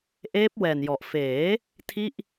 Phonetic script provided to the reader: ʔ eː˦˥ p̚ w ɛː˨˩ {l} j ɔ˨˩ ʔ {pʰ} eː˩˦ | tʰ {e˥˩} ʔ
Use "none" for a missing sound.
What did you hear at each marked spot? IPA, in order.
n, f, i˥˩

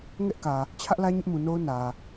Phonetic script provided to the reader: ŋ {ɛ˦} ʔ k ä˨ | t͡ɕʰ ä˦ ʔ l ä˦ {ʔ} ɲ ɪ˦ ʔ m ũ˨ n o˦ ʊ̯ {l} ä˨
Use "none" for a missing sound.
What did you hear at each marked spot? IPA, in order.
ɛ˦, none, n

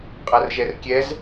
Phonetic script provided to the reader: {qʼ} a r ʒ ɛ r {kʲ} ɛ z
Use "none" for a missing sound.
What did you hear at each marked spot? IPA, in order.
qʼ, kʲ

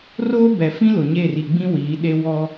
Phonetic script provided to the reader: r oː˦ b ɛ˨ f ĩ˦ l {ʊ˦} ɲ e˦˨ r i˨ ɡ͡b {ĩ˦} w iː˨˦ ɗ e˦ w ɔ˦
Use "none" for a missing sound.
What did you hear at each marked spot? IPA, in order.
ʊ˨, ĩ˦

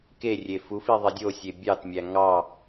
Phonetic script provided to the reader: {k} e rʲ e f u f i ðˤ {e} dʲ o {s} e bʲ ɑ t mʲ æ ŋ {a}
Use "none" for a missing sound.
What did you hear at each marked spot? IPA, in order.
k, i, sʲ, ɑ

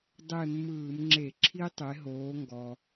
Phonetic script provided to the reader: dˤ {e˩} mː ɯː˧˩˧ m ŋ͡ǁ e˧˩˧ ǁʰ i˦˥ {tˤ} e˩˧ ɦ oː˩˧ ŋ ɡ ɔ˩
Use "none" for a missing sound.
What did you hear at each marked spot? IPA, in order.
e˦˨, tˤ

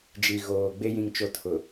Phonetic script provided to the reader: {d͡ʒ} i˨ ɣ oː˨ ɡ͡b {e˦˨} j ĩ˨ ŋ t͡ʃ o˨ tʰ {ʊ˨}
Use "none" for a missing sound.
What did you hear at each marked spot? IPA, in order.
d͡ʒ, e˦, ʊ˨

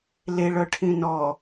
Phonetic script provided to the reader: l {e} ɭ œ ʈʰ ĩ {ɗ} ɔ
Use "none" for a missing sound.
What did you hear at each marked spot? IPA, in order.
e, n

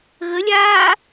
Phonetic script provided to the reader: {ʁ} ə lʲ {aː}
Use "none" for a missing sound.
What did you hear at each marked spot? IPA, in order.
ɣ, aː

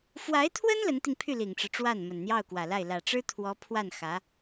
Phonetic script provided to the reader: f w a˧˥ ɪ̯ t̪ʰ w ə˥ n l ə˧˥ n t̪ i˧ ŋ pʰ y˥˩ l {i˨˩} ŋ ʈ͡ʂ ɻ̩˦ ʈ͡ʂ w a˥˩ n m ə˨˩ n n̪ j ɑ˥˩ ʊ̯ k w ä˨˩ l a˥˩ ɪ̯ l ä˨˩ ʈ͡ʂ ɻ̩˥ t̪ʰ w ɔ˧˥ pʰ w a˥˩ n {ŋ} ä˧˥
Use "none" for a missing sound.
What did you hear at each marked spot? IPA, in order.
i˨˩, x

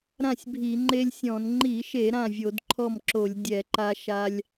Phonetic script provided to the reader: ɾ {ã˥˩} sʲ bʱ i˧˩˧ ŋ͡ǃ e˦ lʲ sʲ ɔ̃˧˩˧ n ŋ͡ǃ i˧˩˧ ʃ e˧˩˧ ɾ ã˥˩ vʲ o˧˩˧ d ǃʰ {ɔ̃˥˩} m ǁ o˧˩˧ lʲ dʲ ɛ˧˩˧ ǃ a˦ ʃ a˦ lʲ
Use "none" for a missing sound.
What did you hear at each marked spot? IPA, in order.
ã˥˩, ɔ˥˩

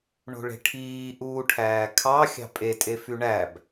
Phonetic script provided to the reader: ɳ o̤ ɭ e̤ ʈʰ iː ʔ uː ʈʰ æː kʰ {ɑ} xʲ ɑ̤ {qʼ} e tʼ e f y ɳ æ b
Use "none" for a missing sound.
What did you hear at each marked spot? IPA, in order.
ɑ, pʼ

